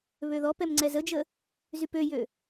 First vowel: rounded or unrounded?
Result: rounded